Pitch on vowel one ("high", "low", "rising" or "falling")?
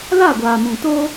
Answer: falling